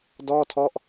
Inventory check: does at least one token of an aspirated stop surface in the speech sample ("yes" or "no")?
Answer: yes